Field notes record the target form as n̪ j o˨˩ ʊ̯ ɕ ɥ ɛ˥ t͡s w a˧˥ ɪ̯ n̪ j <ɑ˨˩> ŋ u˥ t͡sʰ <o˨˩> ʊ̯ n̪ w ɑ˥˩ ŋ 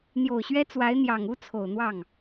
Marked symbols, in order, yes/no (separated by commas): yes, yes